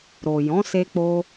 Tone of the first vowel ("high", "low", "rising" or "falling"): low